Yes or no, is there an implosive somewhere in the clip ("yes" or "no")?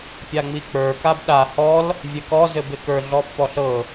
yes